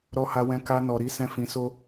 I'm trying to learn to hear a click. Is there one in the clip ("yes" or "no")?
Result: no